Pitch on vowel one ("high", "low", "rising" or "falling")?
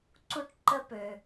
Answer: high